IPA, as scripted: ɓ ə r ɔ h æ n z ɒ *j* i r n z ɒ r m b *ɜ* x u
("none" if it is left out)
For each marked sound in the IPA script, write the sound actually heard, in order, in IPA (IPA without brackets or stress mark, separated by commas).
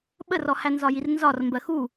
j, ɜ